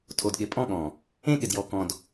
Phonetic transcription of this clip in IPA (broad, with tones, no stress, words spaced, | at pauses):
tʰo˨dɠɪ˨ pʼɔ̃˦˨ɠɔ̃˨ | ẽ˦ɠɪ˨d jɔ˨kɔ̃˨d